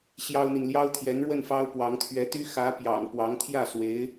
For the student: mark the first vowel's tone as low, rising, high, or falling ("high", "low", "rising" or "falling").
high